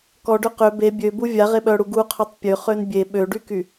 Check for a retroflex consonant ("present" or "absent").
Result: present